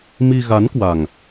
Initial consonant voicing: voiced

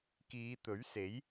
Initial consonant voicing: voiceless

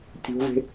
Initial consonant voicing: voiceless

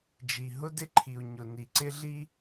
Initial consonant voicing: voiced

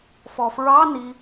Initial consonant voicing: voiceless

